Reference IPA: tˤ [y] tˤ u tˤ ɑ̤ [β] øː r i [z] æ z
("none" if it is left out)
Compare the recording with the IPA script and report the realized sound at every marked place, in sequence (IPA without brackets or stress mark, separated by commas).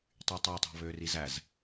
y, β, z